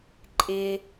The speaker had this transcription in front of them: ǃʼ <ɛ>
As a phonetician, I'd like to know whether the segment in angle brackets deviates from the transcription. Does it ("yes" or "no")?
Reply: yes